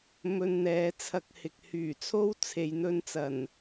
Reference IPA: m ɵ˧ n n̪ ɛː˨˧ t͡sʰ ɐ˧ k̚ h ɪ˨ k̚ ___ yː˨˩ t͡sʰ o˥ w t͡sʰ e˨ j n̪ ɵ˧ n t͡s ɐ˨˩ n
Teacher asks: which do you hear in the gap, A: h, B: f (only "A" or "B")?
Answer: A